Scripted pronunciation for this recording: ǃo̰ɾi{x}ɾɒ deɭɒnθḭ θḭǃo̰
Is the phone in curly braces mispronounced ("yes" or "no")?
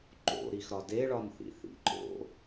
no